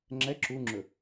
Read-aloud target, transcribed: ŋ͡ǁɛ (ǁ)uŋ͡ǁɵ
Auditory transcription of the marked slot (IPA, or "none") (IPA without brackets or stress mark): ǁ